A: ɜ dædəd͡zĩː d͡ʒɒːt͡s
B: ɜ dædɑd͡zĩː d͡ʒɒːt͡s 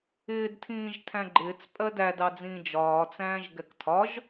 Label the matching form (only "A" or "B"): B